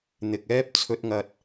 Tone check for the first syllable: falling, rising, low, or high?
low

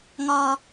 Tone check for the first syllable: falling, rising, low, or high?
low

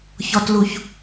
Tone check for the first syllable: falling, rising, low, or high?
low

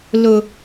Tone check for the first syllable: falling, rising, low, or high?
low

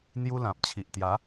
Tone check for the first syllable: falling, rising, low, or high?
high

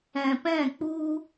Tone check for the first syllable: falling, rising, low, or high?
low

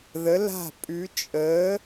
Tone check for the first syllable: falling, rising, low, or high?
rising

